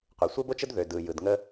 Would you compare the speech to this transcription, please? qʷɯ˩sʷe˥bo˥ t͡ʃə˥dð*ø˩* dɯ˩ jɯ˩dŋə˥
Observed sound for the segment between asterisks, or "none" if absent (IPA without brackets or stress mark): ø˩